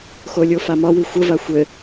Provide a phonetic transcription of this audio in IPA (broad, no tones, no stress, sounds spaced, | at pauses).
x o lʲ o f a m ɒ w i xʷ ə v a xʷ ɘ